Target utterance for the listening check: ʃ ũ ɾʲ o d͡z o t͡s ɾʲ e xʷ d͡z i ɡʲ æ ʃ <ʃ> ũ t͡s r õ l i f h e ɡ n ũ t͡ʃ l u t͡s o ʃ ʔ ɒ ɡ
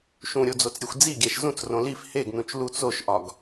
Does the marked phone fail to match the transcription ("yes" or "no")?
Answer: yes